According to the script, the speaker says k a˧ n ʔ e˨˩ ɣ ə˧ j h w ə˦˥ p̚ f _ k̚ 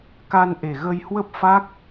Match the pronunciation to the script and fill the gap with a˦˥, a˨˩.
a˦˥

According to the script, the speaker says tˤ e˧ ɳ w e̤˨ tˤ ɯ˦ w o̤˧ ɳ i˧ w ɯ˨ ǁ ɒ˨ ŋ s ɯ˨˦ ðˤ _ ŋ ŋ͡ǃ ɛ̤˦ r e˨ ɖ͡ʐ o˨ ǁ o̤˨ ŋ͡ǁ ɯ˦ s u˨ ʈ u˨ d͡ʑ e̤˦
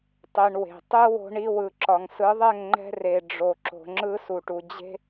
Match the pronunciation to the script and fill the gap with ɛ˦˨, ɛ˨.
ɛ˦˨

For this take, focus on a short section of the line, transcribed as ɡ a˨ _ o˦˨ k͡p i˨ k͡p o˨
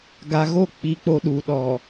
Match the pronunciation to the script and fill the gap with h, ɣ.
ɣ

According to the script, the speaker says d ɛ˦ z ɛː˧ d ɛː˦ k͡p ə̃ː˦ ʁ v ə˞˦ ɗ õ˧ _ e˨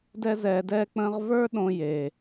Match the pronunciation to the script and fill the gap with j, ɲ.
j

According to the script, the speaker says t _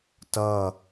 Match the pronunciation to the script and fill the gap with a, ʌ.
ʌ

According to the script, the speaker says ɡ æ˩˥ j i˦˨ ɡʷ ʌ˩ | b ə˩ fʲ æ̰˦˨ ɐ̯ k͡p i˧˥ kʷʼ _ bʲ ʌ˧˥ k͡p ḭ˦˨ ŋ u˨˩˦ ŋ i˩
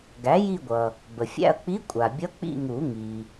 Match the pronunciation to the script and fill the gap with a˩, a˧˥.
a˩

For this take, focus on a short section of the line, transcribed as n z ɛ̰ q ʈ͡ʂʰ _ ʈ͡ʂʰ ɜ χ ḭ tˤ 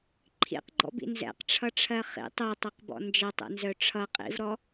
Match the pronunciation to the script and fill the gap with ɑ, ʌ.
ʌ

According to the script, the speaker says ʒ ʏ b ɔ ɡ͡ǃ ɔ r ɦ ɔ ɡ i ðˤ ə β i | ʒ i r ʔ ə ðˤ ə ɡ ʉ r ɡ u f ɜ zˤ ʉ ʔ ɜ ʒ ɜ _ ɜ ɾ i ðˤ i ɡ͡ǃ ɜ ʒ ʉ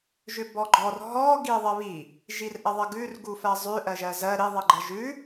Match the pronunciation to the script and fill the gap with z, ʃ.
z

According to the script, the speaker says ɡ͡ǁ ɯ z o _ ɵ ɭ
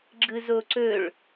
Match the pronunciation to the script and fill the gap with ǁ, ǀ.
ǀ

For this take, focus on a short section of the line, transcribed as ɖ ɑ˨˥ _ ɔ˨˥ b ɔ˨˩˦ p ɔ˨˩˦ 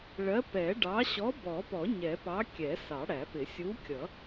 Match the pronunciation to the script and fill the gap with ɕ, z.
ɕ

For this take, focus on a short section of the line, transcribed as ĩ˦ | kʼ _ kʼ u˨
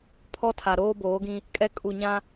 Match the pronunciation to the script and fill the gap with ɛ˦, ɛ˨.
ɛ˦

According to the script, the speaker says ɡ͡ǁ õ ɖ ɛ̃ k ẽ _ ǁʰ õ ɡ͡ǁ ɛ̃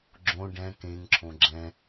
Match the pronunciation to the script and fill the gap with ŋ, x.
ŋ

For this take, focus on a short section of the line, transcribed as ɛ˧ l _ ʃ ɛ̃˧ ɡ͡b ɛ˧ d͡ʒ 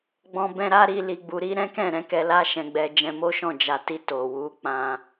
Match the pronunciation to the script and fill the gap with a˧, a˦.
a˦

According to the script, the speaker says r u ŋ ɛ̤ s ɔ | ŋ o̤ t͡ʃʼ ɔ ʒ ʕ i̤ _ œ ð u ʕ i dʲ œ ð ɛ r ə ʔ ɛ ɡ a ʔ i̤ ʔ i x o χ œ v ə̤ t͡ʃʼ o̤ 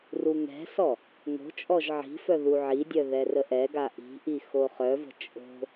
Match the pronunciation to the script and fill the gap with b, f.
f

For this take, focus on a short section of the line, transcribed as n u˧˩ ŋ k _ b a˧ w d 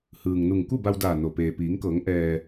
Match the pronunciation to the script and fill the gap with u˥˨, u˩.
u˥˨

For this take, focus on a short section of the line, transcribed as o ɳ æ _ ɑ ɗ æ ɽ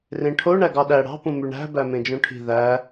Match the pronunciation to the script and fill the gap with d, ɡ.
ɡ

